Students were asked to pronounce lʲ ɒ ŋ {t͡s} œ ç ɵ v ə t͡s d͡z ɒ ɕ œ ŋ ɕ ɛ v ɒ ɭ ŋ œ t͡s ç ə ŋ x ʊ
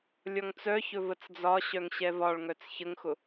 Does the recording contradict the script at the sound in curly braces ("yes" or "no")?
no